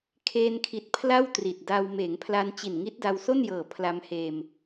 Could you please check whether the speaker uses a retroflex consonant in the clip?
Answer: no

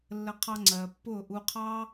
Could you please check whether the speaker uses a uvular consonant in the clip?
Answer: yes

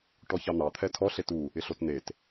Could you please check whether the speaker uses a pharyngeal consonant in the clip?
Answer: no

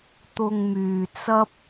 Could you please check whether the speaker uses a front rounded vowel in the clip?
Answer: yes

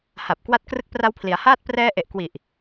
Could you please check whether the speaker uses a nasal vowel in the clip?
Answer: no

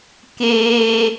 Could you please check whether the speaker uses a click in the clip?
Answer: no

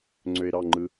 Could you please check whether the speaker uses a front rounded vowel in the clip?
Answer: yes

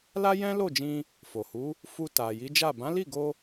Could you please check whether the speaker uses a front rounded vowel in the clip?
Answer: no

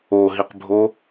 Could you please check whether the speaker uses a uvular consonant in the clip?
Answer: yes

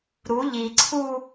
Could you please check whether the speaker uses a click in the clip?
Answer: yes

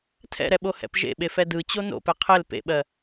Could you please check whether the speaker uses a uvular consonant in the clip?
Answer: yes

